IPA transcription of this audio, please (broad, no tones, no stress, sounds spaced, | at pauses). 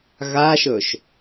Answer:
ɣ a ʃ ɵ ʃ